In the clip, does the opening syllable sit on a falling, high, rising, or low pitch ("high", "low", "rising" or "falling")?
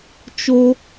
high